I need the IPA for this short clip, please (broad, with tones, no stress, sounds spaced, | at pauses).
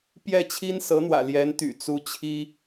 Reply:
p j ɛ˥˩ t͡ɕʰ i˥ n s ɤ˧˥ n̪ w ä̰˨˩ l j ɛ˧˥ n t̪ y̰˨˩ t͡s u˥ t͡ɕʰ i˥